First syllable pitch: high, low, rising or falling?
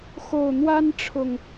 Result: low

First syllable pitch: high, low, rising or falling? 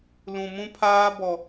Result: low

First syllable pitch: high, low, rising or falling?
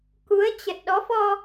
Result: rising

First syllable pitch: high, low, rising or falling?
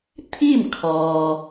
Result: falling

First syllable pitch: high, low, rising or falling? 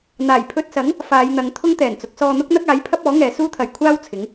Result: low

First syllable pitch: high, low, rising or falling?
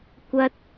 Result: high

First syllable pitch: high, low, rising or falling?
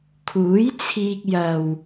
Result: rising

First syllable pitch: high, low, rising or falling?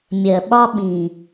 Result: low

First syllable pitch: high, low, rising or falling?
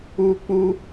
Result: high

